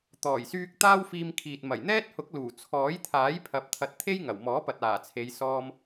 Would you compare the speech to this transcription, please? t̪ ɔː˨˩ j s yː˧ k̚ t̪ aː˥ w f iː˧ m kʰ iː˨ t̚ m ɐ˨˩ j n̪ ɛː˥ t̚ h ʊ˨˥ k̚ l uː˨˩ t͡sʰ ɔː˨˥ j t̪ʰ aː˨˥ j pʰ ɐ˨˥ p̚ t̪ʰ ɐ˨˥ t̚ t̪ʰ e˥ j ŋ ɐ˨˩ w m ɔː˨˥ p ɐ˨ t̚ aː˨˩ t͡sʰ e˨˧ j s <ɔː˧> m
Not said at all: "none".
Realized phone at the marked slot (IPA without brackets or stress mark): ɔː˧